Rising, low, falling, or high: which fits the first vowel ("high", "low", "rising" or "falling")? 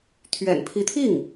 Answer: low